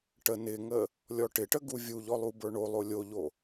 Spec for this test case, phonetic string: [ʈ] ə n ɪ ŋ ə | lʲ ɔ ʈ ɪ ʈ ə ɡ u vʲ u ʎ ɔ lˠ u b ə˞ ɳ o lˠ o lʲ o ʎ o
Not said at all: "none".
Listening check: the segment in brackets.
ʈ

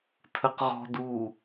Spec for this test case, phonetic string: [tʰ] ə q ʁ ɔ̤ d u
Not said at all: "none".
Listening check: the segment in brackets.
tʰ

